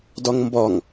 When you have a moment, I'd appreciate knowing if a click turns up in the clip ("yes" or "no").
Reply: no